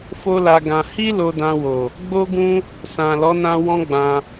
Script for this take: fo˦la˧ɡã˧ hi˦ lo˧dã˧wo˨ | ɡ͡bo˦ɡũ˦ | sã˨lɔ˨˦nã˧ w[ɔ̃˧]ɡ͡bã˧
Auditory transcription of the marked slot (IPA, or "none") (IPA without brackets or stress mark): ɔ̃˦